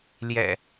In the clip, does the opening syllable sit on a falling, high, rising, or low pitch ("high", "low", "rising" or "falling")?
low